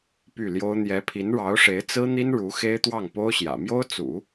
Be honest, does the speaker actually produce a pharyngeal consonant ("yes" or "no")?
no